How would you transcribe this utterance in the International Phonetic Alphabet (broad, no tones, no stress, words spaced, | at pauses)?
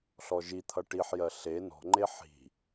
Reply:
ɬɔʒit̪ʰʌ ʈiħjɜ ɬe nɔ̤ŋ͡ǃe ħi̤